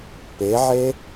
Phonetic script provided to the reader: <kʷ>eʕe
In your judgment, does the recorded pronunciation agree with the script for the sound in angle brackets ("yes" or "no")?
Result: no